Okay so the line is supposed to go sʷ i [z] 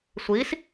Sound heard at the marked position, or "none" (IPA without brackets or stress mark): s